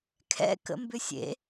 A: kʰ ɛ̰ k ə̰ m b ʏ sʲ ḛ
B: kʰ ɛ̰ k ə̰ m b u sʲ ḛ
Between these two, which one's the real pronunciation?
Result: A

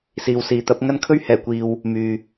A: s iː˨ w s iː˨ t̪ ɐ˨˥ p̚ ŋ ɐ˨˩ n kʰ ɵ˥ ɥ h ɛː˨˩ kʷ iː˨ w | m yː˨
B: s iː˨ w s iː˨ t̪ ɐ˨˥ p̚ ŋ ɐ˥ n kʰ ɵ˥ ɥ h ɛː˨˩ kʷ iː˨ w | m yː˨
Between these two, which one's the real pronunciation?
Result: B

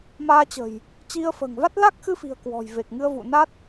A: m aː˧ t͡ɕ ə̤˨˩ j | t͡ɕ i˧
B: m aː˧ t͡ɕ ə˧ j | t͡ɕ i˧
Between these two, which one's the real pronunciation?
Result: A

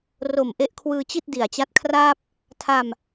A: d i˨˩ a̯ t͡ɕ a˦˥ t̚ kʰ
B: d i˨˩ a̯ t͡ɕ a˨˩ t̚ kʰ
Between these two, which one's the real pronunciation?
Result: A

